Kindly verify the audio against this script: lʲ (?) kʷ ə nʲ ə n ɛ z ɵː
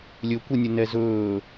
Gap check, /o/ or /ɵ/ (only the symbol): ɵ